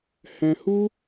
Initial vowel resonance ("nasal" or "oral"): nasal